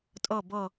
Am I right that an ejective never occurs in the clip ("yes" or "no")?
no